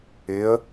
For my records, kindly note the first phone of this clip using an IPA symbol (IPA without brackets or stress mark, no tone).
ɪ